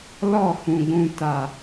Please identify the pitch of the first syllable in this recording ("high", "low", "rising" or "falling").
falling